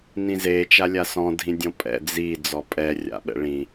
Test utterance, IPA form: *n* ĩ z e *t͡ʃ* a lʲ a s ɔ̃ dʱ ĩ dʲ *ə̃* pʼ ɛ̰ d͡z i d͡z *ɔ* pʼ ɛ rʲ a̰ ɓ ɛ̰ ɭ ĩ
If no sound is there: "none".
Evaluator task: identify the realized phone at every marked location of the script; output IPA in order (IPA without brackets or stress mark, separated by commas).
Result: n, t͡ʃ, ɔ̃, ɔ